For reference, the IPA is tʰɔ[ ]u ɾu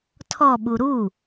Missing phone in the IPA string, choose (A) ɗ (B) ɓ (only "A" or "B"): B